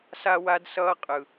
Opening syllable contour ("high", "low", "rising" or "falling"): high